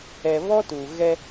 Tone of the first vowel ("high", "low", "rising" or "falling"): low